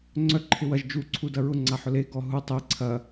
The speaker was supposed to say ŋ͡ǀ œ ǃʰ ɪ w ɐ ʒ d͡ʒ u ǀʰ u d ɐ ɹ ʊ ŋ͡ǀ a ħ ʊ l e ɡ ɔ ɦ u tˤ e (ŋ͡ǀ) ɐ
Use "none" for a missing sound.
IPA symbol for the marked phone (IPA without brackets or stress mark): ǀʰ